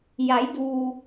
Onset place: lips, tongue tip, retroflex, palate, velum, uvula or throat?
palate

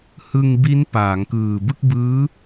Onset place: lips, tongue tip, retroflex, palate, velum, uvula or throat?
throat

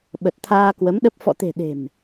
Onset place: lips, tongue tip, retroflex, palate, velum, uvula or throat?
lips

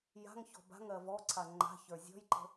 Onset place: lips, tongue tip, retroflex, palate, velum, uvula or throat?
palate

